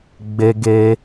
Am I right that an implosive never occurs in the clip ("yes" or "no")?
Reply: yes